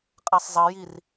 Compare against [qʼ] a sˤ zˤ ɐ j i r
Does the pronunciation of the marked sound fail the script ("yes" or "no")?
no